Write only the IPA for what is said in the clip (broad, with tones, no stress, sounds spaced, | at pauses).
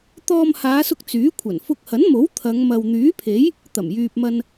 t̪ ɔː˧ m h aː˨˧ s ʊ˧ k̚ t͡s yː˨˥ kʷʰ ɐ˨˩ n f ʊ˧ k̚ h ɐ˨˥ n m o˨˥ w t̪ʰ ɐ˨˧ ŋ m ɐ˨ w n̪ yː˨˥ pʰ e˨˥ j | t̪ ɐ˨˩ m j yː˨ p̚ m ɐ˧ n